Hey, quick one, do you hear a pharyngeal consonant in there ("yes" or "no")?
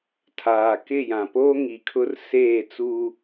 no